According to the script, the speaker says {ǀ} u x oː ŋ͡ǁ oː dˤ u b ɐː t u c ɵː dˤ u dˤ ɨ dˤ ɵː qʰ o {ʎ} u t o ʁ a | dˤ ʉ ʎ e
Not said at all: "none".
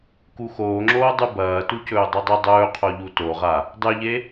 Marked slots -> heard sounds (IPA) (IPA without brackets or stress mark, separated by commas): k, ʎ